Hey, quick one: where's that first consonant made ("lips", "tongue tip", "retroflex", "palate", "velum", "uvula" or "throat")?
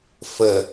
lips